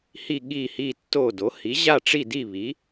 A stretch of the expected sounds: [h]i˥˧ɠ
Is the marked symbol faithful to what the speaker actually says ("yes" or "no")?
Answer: yes